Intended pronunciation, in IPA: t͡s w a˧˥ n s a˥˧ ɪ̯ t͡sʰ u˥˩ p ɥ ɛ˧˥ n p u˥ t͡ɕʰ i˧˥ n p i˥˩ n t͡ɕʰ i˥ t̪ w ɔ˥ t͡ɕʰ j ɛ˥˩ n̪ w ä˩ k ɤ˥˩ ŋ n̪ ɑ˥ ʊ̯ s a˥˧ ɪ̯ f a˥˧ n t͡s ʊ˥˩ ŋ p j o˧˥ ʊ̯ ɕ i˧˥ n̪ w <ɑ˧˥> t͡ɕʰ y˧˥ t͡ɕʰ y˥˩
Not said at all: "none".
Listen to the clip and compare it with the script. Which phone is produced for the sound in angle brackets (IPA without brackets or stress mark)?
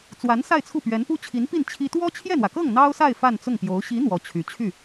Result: ɔ˧˥